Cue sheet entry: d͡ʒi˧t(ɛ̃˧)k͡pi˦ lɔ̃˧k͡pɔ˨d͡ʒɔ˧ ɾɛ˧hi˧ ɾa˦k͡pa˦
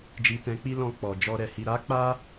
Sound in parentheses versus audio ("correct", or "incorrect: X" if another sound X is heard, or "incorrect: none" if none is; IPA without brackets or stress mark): correct